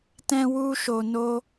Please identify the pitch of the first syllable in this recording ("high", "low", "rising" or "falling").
high